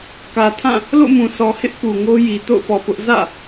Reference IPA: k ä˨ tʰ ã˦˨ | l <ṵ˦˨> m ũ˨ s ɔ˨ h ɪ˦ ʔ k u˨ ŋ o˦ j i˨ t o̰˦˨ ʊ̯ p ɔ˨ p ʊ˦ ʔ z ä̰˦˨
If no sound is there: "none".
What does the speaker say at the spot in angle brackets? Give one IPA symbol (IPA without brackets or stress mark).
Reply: o̰˦˨